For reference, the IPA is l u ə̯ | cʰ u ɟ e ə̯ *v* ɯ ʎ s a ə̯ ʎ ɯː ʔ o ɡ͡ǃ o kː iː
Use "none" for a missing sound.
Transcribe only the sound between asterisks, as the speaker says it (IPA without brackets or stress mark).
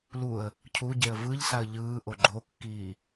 v